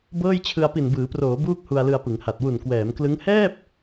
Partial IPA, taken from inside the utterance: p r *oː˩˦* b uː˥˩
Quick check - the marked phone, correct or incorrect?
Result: correct